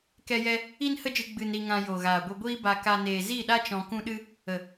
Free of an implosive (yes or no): no